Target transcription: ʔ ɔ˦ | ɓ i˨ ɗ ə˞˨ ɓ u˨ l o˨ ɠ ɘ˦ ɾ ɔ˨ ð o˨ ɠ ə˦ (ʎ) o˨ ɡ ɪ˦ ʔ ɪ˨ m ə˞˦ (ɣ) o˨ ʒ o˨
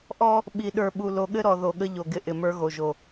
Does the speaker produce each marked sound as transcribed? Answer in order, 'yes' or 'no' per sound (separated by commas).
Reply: yes, yes